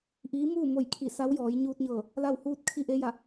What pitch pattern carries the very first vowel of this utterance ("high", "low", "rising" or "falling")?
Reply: rising